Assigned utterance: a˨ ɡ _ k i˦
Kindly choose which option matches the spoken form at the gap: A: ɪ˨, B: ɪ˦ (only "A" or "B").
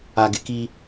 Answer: A